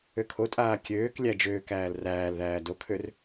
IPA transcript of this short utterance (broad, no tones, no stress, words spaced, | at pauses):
økʰotʼaː kʲøːk lʲæd͡ʒøːkæːl ræːlðæː dokʰør